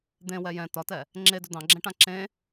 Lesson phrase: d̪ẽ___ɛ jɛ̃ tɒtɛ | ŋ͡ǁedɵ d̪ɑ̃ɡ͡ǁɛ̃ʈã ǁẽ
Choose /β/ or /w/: w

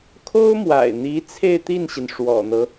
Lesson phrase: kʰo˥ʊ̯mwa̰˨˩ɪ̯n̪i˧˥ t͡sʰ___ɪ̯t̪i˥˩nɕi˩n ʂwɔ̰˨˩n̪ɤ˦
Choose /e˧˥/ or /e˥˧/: e˥˧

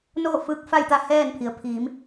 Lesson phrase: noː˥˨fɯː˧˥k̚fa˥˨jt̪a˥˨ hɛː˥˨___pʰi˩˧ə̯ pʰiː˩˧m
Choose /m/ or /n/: n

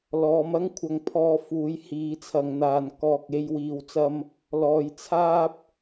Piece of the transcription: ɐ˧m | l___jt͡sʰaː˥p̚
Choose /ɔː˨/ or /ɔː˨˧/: ɔː˨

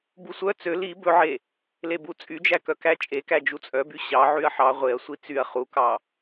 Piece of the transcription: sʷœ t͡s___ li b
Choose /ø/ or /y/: ø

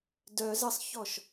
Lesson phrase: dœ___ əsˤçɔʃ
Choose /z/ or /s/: z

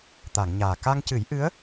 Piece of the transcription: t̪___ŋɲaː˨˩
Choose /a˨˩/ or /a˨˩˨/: a˨˩˨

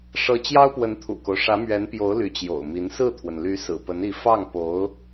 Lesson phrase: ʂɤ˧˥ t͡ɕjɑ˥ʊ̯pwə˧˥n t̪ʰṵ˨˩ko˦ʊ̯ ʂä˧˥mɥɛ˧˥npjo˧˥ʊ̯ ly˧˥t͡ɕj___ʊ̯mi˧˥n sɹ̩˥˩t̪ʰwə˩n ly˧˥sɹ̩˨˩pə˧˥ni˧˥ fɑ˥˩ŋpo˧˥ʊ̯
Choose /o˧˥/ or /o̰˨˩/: o̰˨˩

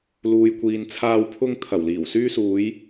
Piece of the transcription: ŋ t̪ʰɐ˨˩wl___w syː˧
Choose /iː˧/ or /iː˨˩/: iː˨˩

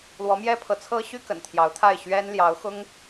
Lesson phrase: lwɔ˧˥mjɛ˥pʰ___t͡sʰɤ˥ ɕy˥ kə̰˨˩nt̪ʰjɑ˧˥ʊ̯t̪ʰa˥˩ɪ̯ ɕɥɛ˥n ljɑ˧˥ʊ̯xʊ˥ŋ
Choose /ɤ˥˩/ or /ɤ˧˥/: ɤ˧˥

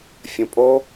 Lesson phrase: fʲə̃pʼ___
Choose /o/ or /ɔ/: o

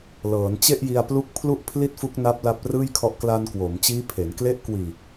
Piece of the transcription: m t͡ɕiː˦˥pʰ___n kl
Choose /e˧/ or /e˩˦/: e˩˦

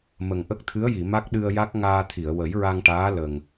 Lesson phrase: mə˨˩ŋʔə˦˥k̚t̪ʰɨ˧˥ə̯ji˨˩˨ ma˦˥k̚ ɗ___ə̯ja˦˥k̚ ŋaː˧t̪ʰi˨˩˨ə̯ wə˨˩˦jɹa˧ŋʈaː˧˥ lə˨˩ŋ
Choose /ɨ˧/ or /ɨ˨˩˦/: ɨ˧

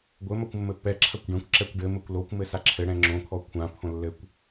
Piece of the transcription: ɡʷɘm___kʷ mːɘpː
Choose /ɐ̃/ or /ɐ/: ɐ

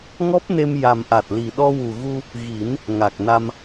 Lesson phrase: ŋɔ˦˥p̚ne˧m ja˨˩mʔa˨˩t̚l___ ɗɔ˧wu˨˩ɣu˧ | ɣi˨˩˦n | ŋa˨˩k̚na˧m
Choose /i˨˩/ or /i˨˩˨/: i˨˩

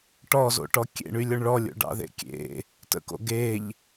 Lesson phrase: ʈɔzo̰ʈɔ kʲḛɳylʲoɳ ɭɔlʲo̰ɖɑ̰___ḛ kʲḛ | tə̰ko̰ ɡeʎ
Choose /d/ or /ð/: ð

